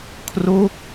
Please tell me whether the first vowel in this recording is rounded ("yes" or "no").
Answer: yes